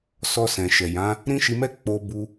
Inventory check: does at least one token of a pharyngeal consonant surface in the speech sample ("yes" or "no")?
no